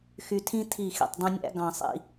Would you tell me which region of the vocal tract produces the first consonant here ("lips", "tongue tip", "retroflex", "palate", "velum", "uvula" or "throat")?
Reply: velum